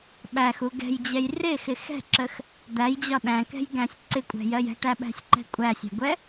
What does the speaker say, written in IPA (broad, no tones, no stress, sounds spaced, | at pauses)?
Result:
ɓ æ x u ɡ ɛ̤ j d͡ʑ ɛ j r ɪ x ɪ x ɛ̤ ǁ ə x | d̪ æ j d͡ʑ ɒ ɗ æ̃ k ɛ̤ j ɡ æ̃ sʲ ǀ ɪ kʷʼ ɛ̤ j ɜ j ɛ̤ ʈ æ ɓ æ̤ sʲ ǃ ɛ̤ kʷʼ æ sʲ æ̤ ɡʷ ɛ